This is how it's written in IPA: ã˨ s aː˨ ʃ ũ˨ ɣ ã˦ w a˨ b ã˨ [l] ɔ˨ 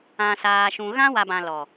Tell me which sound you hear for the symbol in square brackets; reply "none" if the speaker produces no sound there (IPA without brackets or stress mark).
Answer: l